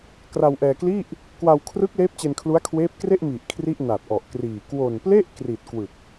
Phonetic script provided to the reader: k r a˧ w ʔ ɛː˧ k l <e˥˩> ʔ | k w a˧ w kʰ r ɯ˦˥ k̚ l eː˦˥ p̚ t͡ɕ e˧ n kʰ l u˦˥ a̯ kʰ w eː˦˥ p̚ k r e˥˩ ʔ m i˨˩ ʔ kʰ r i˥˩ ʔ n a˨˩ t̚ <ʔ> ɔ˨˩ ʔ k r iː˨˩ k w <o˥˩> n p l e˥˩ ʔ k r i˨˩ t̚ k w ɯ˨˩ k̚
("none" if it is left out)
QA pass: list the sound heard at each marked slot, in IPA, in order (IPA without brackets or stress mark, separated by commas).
i˥˩, ʔ, o˨˩